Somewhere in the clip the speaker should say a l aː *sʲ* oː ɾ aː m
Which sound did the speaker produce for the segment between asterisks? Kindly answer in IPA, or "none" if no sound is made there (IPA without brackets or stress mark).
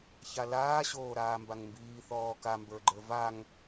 ɕ